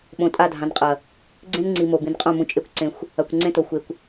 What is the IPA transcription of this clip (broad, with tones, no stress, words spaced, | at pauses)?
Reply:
ɓõ˨tʼa˦˨dʱã˨nqʼɐ˨ | ɡ͡ǀẽ˦nŋ͡ǀi˨ mo˨bĩ˨nqʼõ˦˨ mũ˨t͡ʃʼe˨˦kʷ ǀẽ˨xʷ | ɐ˨kʷ ŋ͡ǀẽ˦to˨xʷe˨kʷ